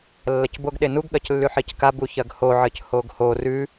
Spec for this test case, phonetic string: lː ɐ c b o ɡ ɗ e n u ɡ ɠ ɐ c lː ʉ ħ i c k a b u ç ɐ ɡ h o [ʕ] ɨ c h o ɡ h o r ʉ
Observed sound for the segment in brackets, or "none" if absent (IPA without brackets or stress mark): ʕ